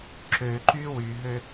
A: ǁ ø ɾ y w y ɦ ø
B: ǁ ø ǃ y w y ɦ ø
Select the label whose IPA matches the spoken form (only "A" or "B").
B